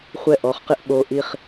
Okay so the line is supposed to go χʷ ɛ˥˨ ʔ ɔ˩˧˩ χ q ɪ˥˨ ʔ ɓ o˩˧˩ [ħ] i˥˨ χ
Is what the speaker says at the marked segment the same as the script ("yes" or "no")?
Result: no